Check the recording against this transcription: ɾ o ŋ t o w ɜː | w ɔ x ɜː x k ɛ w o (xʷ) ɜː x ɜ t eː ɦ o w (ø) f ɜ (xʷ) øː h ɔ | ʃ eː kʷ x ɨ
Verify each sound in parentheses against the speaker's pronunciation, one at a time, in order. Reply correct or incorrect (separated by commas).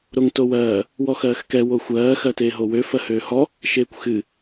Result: correct, correct, incorrect